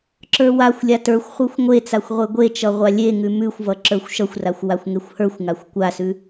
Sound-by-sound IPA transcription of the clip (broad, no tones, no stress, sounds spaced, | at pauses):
ǁ ə˞ w a xʷ lʲ a t ə˞ xʷ χʷ ə˞ xʷ ŋʷ e t͡s a xʷ ʁʷ e ɡʷ e t͡ʃ ʌ ʁʷ a lʲ e ŋ ʉ m ʉ xʷ v ʌ ǁ ə˞ xʷ ʃ ʌ xʷ r a xʷ w a xʷ ŋ e xʷ h ə˞ xʷ ŋ a xʷ kʷ a s ʉ